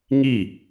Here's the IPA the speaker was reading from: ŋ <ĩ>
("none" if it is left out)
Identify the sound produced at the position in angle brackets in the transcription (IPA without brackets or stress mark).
i